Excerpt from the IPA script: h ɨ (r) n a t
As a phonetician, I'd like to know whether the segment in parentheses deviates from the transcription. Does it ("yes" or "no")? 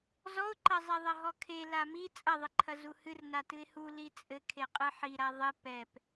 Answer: no